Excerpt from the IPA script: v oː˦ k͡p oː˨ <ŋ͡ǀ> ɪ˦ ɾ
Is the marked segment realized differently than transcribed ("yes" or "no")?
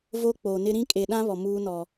yes